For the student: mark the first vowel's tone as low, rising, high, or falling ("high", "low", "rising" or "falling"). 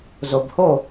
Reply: low